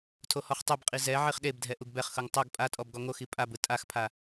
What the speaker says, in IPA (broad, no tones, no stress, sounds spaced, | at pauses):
tʰ o h ɔ χ tˤ ɛ b qʼ i z ɛ ʕ i χ ɗ e b dʱ ɛ ʔ u ɡ b ɛ χ x ɤ ŋ tˤ ɤ ɡ pʼ a tʼ ɔ b ɡ ɔ ŋ o x i pʼ a b ɯ tʼ a x pʰ a